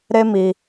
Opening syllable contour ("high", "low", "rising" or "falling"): high